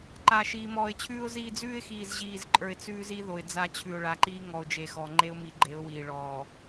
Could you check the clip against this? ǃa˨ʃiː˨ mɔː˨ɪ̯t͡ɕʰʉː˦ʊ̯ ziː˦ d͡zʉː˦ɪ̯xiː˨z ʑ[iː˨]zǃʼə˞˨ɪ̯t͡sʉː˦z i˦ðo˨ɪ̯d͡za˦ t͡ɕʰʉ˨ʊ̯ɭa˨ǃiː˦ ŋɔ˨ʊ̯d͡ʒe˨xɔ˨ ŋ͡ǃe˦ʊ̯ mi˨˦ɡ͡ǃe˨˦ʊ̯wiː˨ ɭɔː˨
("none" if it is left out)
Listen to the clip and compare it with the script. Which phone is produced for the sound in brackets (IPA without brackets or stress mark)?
iː˨